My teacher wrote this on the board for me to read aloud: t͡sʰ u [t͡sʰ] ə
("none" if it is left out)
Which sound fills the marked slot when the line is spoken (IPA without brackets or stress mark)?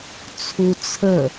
t͡sʰ